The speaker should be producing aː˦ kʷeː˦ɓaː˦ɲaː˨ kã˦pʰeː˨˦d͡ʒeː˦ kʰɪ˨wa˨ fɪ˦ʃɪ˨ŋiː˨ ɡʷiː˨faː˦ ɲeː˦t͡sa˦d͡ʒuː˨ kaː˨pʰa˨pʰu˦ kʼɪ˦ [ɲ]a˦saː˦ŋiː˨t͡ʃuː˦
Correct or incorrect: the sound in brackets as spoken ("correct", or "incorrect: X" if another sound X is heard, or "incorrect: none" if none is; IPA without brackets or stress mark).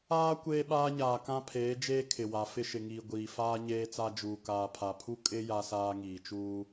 incorrect: j